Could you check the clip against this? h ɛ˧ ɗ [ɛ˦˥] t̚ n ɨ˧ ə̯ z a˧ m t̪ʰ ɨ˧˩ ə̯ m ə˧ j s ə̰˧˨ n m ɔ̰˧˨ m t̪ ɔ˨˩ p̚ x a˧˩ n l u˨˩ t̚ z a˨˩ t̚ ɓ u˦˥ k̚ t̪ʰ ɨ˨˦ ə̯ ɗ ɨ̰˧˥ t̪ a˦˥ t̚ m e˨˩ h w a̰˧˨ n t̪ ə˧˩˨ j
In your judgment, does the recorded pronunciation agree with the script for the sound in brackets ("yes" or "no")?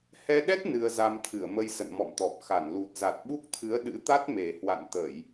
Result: yes